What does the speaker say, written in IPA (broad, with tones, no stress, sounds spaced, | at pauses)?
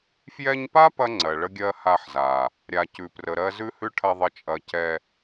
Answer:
f j ɛ˧ ɲ p a˦ p ɐ˦ ŋ͡ǀ ɜ˨ ɭ ə˦ ɡʲ ɜ˦ h a˧ ħ z a˨ | ɾʲ a˨ c ʉ˨ p r ə˨ ɾ ɜ˦ z ʉ˦ h ʉ˦ ʈʰ ɐ˧ ðˤ ə˦ t͡ʃʼ ɐ˦ c ɛ˧